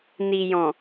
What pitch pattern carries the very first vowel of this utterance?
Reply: low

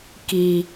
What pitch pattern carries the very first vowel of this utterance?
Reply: low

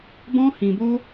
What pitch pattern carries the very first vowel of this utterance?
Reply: high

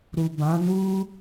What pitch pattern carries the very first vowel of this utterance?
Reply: low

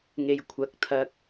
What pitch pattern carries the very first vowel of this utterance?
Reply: low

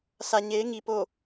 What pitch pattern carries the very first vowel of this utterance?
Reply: low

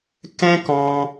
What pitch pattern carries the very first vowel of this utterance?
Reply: high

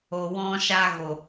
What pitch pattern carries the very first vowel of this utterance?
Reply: low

